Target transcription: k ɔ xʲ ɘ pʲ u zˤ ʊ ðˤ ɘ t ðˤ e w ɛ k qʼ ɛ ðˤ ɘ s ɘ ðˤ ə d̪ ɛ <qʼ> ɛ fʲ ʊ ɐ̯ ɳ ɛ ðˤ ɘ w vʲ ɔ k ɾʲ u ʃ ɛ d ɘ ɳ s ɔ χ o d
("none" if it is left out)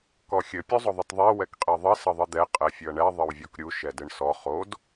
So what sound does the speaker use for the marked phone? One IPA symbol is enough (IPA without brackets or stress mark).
qʼ